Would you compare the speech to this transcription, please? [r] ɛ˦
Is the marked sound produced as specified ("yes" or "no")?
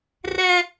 yes